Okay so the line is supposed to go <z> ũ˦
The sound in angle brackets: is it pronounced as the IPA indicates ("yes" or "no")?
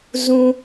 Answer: yes